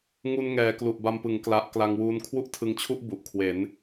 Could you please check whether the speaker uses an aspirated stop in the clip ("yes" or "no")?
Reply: yes